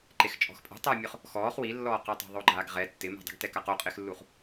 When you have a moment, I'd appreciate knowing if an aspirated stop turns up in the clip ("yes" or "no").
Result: no